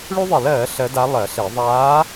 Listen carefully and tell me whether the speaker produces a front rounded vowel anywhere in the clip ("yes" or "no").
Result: yes